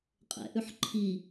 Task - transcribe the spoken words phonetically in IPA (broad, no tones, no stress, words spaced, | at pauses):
qʼɛ̰ʔʉħ ǃʰi